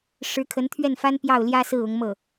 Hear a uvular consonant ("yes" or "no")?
no